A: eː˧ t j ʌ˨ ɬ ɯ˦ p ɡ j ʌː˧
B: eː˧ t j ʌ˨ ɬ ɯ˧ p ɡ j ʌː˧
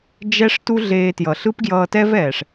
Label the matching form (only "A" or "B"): A